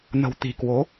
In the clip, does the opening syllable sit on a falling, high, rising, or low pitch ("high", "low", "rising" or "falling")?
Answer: low